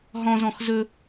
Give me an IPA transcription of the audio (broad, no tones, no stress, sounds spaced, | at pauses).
ɦ ɔ̃ z ɔ̃ x z ɵ